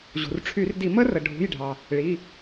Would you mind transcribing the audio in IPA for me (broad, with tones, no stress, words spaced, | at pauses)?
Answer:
ʑṳ˩rʈ͡ʂʰy˧˩˧rdi˧˩˧mə˦˥ rə˩ɖʱṳ˩˧˩jɖʱɑ˩ | ɭi˩˧˩